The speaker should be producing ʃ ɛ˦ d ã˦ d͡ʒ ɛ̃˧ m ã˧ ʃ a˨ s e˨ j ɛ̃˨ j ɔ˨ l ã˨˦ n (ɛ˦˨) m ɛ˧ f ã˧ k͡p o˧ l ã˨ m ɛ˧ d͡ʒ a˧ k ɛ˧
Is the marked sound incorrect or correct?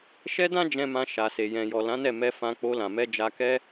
correct